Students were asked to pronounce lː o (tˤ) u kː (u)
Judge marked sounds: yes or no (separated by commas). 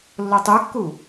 yes, yes